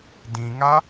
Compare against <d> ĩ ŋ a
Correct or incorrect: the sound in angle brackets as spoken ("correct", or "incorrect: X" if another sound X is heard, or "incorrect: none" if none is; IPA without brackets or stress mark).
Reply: correct